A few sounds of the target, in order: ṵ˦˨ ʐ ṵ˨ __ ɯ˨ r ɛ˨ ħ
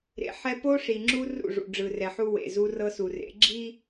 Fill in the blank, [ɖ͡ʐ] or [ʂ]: ɖ͡ʐ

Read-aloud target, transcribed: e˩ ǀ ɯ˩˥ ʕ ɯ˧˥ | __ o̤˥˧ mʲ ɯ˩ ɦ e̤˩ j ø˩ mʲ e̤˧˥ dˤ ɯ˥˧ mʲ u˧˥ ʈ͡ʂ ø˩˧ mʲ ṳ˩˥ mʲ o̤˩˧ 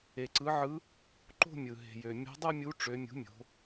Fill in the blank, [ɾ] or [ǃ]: ǃ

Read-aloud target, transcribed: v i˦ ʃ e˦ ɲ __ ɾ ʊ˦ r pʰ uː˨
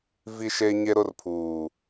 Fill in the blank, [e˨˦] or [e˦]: e˦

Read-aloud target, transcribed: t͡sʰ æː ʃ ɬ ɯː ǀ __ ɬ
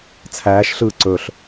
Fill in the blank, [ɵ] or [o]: ɵ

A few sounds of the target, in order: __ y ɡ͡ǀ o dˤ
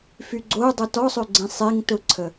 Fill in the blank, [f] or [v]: f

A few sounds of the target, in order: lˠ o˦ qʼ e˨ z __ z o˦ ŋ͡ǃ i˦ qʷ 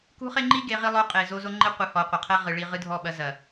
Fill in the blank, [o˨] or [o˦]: o˦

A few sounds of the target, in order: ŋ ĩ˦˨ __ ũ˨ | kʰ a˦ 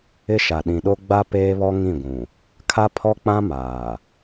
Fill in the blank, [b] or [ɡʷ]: ɡʷ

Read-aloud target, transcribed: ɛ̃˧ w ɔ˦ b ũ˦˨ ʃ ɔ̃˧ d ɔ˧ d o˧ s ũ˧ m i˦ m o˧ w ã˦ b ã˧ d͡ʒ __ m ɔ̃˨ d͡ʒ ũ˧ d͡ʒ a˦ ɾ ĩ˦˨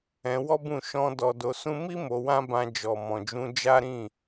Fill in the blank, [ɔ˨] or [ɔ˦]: ɔ˨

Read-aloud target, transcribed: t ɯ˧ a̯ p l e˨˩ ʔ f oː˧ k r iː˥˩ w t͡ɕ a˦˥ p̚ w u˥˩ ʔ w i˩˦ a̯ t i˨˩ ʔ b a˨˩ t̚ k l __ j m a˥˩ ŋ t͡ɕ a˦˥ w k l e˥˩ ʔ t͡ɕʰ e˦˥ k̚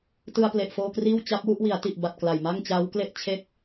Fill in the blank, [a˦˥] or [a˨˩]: a˨˩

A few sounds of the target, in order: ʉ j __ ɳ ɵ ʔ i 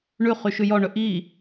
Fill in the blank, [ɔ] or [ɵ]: ɔ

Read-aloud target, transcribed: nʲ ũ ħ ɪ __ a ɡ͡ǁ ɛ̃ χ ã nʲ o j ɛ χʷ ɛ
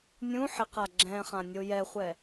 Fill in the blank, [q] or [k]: q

